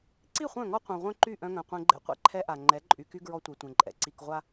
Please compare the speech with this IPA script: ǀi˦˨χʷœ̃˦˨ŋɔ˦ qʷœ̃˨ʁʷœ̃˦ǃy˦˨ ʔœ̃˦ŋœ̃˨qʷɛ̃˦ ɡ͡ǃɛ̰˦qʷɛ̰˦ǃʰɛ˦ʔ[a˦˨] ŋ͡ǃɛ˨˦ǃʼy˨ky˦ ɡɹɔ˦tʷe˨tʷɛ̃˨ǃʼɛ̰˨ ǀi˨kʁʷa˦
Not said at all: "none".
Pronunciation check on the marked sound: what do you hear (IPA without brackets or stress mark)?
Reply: a˨